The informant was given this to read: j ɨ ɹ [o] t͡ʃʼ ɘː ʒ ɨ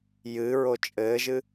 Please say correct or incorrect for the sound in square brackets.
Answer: correct